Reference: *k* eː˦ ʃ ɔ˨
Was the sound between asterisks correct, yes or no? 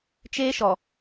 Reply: no